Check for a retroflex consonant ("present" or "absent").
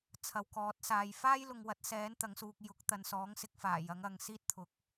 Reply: absent